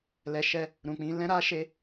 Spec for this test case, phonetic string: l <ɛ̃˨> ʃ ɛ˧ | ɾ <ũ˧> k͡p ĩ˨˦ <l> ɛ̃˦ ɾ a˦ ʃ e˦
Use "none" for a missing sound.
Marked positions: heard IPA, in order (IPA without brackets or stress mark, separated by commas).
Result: ɛ˨, ũ˨, l